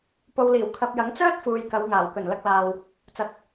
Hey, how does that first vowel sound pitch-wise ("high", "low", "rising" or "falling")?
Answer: low